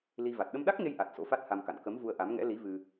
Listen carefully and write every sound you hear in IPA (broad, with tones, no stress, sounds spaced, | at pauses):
l i˧ v a˨˩ t̚ ɗ ə˧ m ɗ a˦˥ k̚ ŋ e˧ j ʔ a˨˩ t̚ s o̰˧˥ f a˦˥ t̚ h a˧ m k a̰˧˨ n k ə˨˦ m v u˧ ə̯ ʔ a˨˦ m ŋ ɛ̰˧˥ l i˨˦ v ɨ˧